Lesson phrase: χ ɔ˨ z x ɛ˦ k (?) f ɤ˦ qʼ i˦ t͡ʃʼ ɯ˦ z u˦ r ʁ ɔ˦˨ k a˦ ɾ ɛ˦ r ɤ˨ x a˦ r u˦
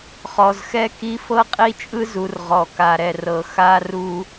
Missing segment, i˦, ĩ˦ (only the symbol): i˦